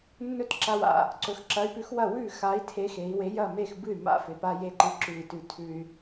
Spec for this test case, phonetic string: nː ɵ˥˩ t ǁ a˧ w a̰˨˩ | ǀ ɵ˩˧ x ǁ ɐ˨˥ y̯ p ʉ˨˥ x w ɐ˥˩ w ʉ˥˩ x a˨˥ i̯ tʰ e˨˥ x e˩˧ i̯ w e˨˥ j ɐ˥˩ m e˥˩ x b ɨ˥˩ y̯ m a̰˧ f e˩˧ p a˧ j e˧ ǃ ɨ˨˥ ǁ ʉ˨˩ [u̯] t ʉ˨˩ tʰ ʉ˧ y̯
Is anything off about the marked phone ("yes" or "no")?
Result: yes